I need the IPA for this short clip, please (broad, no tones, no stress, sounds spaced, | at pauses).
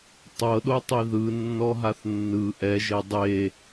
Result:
tˤ ɤ ɗ o tˤ i ð ɯ nː ɔ ɦ a θ nː ɯ ʔ ɛ ʒ e dˤ e